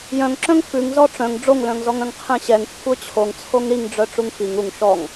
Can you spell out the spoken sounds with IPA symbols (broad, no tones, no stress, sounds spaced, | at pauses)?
j œ̃ ŋ ǁ œ̃ ŋ f ʉ ŋ z ɔ ʈ͡ʂ œ̃ ŋ ɖ͡ʐ o ŋ l œ̃ ŋ z ɔ ŋ œ̃ ŋ qʰ ɛ̃ ɕ ɛ ŋ kʷʰ œ t͡ɕʰ o ŋ t͡sʰ o ŋ ɾ i ŋ ɖ͡ʐ œ ʈ͡ʂ u ŋ f i ŋ u ŋ ʃ ɔ ŋ